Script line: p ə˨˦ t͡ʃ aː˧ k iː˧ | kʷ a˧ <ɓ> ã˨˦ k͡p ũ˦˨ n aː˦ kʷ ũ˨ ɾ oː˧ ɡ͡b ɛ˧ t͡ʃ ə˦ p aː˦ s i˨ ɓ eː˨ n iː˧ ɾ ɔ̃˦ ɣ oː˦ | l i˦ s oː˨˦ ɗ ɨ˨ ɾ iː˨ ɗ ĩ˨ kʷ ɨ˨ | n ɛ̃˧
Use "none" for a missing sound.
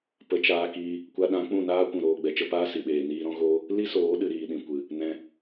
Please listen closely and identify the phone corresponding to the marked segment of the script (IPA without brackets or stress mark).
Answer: ɗ